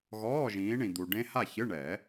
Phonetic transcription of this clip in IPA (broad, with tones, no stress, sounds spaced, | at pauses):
ɣ ɔː˧˥˧ ʒ ĩː˨˦ ɳ ĩ˨ d̪ u˨ ɖ ẽ˦˥ h a˥˨ ç ɨ˧˥˧ ɳ ɛ˨˩˦